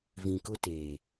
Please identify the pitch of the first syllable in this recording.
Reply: low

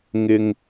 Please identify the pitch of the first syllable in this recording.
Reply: low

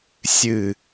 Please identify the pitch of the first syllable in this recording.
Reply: low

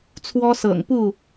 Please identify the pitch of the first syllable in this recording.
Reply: high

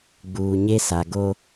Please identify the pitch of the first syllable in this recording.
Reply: low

